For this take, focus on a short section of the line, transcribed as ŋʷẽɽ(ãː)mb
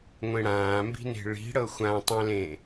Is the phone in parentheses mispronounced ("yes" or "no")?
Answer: no